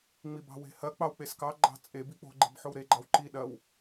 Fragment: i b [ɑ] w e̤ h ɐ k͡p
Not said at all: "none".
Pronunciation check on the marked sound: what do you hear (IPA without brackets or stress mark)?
ɑ̤